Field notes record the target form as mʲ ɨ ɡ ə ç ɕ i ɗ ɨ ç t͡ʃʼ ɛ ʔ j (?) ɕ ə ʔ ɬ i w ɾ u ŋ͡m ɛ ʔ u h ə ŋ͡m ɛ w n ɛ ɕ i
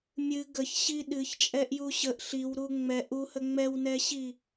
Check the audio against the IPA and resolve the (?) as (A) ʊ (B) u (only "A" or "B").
B